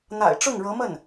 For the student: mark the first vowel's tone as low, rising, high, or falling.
low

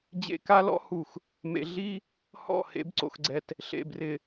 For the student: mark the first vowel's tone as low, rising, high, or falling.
high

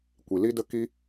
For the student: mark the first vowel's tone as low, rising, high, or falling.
low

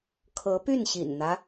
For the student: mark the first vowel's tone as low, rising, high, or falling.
rising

